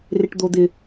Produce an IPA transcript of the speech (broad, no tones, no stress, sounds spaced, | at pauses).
r ɪ ʈ d̪ o d̪ ɪ